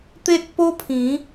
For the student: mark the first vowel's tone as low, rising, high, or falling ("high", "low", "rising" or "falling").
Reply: high